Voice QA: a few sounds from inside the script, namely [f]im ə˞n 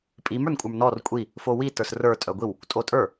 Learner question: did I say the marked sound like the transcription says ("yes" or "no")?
no